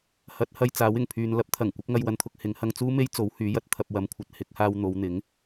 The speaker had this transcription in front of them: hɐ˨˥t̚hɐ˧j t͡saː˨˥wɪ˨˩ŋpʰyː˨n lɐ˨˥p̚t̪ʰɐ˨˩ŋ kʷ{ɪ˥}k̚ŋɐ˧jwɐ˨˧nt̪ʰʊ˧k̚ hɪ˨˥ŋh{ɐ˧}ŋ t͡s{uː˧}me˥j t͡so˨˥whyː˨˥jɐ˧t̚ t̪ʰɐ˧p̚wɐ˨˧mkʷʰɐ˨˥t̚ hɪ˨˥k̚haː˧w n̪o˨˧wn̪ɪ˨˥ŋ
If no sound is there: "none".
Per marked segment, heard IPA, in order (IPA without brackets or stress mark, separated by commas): ɪ˨˥, ɐ˧, uː˥